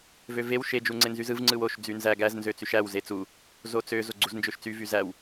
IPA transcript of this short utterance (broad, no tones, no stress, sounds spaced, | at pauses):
v ø v e w ʃ e d͡ʒ u ŋ͡ǀ e n z y z ɯ v ŋ͡ǀ ɯ w o ʃ d͡z y n z æ ɡ æ z n z ø t͡s y ʃ æ w z e t͡s u | z o t͡s ø z o ɡ͡ǀ u z n d͡ʒ ø ʃ t͡s y v y z æ w